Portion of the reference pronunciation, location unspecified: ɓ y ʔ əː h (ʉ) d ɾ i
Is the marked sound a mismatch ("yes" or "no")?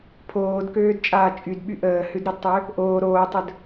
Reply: no